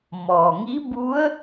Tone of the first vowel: low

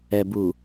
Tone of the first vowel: low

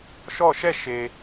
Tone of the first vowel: falling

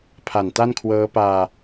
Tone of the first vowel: low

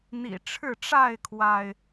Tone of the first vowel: low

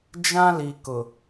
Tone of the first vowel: high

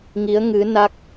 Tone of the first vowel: rising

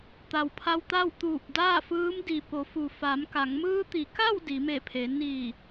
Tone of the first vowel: low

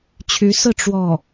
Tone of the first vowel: rising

